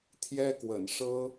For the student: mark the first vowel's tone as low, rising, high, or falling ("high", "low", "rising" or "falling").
high